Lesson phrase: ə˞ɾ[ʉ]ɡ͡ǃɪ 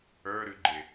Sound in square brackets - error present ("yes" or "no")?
no